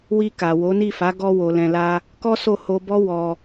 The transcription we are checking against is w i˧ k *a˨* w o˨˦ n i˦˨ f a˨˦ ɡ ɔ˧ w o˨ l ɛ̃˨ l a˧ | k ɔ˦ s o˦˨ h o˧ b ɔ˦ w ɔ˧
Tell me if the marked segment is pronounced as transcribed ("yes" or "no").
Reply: yes